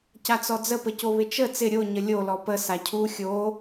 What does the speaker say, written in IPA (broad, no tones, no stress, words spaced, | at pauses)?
cat͡sɔd͡zə pəcoβɪt͡ʃə t͡sɪ ɾʲo ɲəlʲo lɔpə sacʰu xʲo